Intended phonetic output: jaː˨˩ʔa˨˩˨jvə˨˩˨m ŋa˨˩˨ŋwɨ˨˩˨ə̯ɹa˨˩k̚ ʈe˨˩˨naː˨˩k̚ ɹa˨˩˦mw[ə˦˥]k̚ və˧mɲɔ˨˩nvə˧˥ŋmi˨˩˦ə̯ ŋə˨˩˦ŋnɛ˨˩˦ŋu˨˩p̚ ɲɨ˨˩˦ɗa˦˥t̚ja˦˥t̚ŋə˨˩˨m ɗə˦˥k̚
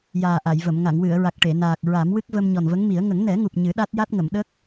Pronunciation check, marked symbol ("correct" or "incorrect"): incorrect